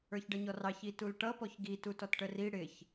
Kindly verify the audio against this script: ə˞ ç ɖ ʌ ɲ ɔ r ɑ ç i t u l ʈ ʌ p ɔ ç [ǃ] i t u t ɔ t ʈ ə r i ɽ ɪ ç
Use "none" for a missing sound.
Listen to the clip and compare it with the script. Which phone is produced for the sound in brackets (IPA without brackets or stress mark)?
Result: ɡ